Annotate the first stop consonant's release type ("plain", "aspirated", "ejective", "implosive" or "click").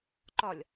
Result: click